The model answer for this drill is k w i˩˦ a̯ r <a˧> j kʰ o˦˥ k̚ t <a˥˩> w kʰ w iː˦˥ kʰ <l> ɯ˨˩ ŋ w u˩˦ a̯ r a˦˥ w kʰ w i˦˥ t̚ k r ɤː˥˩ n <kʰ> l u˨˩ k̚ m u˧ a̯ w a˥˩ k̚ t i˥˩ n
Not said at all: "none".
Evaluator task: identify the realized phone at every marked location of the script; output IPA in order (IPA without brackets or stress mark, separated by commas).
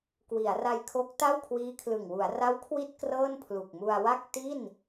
a˧, a˥˩, l, pʰ